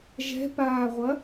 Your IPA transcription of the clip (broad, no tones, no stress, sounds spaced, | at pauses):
ʒ ɛ̤ p aː ʁʷ ɐ